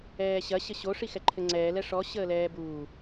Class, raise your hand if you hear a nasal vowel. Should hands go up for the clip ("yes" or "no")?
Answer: no